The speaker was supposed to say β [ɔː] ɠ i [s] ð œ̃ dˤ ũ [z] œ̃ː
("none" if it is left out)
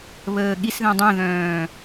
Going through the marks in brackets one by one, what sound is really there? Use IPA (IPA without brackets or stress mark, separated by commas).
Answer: əː, s, ð